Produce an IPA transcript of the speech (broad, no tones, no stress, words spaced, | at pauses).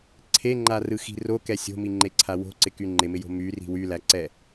ǀʰeŋ͡ǃarɯxi̤ rokɛ sʲo̤miŋ͡ǃeǀʰa wo̤ǀɪky ŋ͡ǃɪmɪjo̤ myri̤ wylæǀɛ